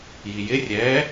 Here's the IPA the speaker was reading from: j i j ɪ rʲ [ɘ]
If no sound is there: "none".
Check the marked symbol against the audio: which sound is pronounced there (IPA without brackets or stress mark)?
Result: ɛ